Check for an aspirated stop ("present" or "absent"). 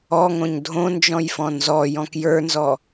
absent